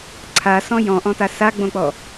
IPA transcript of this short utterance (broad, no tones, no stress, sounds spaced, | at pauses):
ǀʰ a s ɔ̃ j ɔ̃ ʔ ɔ̃ t a s a ɡ͡b õ k͡p ɔ